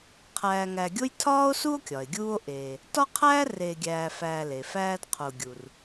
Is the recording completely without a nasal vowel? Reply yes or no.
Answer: yes